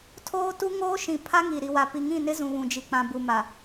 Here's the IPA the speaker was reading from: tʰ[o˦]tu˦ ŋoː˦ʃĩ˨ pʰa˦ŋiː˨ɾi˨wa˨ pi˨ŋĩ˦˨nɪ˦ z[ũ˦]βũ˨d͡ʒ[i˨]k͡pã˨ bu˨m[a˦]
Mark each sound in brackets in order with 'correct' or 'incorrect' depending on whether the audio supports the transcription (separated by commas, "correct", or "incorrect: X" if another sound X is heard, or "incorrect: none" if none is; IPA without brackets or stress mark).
incorrect: oː˦, incorrect: ũ˨, correct, incorrect: a˨